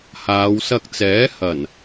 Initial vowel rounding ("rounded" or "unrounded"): unrounded